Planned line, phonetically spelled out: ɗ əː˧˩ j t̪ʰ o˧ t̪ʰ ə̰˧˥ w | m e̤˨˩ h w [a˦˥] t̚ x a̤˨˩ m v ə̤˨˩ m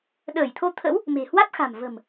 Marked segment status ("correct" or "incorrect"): correct